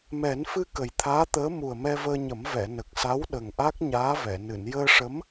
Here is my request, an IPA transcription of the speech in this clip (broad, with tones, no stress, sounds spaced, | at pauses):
m ɛ˨˩˦ n f ɨ˧ k ə˨˩ j t̪ʰ aː˧˥ t̪ əː˧˥ m u˨˩ ə̯ m ɛ˧ v əː˧ ɲ ə˨˩˦ m v ɛ˨˩˨ n ə˨˩ k̚ s a˧˥ w ɗ ə˨˩ ŋ ʔ a˦˥ k̚ ɲ aː˧˥ v ɛ˨˩˨ n ɨ˨˩˨ n j əː˧ ʂ ə˧˥ m